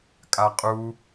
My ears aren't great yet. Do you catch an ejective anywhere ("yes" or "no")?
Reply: yes